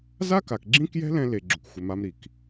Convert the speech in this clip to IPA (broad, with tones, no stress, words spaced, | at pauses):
za˦ka˨kɡ͡ǁĩ˦kjɛ̤˦ lɛ̃˦le˨ ɡ͡ǁʊ˨kxʷɪ˨ma˦m ɾi˨k